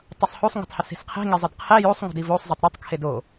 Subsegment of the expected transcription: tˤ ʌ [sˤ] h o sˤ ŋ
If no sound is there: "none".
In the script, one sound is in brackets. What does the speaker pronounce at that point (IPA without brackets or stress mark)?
sˤ